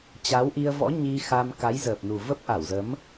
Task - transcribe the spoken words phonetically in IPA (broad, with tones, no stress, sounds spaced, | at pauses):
t͡ɕ a˨˦ w ʔ i˧ ə̯ v ɔ̰˧˥ ɲ i˧ x a˧ m k a˨˦ j z əː˨˩ p̚ n u˨˩ v ə˦˥ p̚ ʔ a˧˩ w z ə˨˦ m